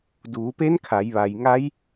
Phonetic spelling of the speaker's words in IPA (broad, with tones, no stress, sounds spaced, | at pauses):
d uː˩˧ p e˧˥ n kʰ a˩˧ j ʋ a˩ j ŋ a˧˥ j